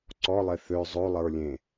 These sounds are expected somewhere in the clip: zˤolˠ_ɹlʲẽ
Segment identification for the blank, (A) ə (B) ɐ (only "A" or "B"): A